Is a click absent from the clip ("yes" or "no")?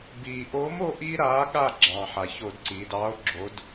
no